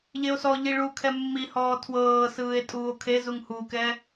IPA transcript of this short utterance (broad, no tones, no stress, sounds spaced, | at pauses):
ʎ e o̯ s ɔ ʎ i ɭ u kʰ ɛ mː i h ɔː tʰ w ɤː s ɯː e̯ tʼ uː o̯ kʰ e z u ŋ h u k ɛ